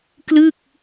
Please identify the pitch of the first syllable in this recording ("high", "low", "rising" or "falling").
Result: falling